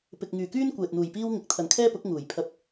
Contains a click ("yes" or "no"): no